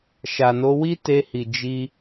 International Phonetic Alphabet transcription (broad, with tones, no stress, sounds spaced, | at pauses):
ʃ a˨ n o˨˦ w i˦ t e˧ h i˨ d͡ʒ i˧